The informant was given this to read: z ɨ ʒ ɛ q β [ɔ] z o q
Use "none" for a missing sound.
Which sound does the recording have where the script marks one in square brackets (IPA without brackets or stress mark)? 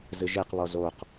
ɔ